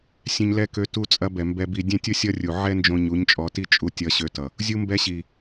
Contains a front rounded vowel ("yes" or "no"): yes